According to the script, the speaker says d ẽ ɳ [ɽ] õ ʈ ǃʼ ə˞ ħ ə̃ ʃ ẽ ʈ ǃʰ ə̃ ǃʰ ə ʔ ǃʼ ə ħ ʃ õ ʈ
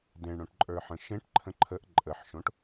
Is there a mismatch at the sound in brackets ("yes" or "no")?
no